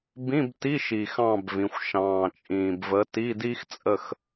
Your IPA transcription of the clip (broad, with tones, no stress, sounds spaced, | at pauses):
b ĩ˧˥˧ b t i˧˥˧ ʃ i˨˩ x ɑ̃˥˧ b v ĩ˩˧ xʷ ʃ ɑ̃ː˨˩ t͡ʃʼ ĩː˨˩ b v ə˨˥ t i˧˥˧ d i˥ x t͡sʼ ə˥˧ x